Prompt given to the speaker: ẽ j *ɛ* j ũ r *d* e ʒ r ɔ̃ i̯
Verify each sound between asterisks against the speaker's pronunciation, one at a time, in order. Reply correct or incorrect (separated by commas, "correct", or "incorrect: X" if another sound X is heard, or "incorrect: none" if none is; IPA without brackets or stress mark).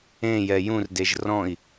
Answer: correct, correct